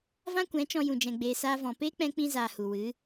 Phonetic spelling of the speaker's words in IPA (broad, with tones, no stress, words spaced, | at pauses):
vã˦kʷɛ̃˨˦t͡ʃɔ̃˧ jũ˧d͡ʒɛ̃˧ɡ͡beː˧ saː˧vɔ̃˨peː˦ k͡pɛ̃˦ k͡pĩ˧zaː˨ hu˨wɨ˨˦